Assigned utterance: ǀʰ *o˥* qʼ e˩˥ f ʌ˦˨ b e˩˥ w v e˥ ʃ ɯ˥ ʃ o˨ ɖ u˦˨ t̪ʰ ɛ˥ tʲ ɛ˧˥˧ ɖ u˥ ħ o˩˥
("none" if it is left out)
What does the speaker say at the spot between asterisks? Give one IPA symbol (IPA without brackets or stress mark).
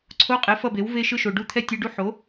o˧˥˧